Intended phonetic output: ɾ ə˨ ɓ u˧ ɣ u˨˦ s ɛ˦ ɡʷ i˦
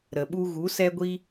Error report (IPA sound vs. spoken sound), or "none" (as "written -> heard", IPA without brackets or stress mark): none